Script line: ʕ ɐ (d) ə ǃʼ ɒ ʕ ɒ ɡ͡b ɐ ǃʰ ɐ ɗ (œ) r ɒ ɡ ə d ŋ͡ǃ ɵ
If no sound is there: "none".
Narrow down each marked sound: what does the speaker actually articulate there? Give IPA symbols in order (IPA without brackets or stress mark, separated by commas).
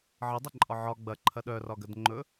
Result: dˤ, œ